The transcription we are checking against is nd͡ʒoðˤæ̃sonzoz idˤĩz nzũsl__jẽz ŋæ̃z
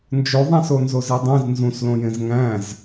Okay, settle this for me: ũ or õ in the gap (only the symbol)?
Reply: õ